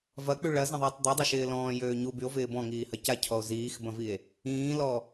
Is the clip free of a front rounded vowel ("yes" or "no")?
no